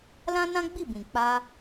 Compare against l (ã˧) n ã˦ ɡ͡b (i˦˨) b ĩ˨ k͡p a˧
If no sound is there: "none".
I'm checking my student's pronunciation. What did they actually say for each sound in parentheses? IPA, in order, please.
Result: ã˦, i˦˨

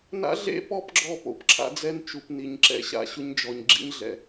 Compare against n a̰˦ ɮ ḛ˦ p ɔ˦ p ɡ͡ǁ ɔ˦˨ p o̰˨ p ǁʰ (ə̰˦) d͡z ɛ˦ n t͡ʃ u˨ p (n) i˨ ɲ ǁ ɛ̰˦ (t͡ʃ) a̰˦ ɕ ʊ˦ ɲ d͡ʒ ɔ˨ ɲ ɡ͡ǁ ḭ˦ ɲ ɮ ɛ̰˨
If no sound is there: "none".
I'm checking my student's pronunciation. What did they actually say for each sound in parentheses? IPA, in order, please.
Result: a̰˦, n, ɕ

